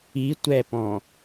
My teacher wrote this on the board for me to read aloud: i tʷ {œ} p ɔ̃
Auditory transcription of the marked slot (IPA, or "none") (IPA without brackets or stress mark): ɛ